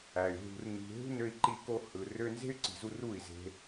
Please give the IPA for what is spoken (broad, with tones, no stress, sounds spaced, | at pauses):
æ˨ y̯ ɦ ṳ˧ r n i̤˧ ɦ ṳ˦ n ø˧ i̯ ǃ i˧ k o˧ h ɯ˨ r ø˧ n z e̤˦ y̯ ǀ i̤˨ z u˧ r u˦˨ i̯ z e̤˧